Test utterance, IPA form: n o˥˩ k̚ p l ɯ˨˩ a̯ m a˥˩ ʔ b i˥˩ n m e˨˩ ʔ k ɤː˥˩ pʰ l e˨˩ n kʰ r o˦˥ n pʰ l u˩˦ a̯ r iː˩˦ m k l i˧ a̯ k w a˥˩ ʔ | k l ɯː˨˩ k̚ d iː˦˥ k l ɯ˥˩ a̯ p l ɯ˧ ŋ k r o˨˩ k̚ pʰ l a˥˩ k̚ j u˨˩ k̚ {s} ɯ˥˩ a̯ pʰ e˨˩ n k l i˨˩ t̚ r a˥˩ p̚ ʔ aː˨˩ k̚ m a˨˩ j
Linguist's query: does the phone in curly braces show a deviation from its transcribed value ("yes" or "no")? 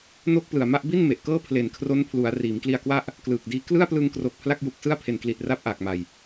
no